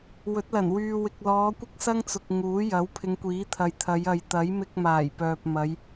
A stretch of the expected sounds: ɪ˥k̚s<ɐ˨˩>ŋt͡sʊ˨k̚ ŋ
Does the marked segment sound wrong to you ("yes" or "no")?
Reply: yes